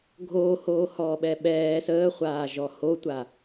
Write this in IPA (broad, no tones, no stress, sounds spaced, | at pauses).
ɡʱ oː h oː h ɔː ɓ ɛ ɓ ɛː s əː χʷ aː ʒ ɔ h o tʷ a